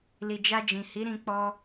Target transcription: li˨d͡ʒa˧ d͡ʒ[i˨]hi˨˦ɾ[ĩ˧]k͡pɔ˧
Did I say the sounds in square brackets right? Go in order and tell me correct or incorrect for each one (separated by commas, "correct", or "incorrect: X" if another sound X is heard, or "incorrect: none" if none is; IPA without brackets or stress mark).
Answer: incorrect: ĩ˨, correct